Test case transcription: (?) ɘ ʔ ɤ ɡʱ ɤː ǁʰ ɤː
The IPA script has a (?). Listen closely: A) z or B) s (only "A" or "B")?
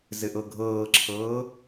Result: A